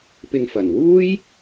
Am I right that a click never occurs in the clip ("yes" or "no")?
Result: yes